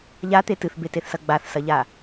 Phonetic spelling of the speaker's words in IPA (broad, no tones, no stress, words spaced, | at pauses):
ʎat̪e tɨθbeteθsɐ ɡ͡baθsɐʎa